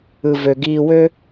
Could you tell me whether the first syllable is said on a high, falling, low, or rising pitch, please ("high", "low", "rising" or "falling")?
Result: low